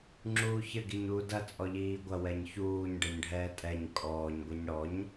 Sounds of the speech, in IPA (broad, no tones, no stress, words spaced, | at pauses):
ŋ͡ǁuːçɘ ɡiɲuːdɐ t͡sʼɔʎiːɡʷɐ wɛɲçuːɲ ɖɛɲɖʱɛːtʼɛɲ kʼɔːɲ ɡʷɛɲɽɔɲ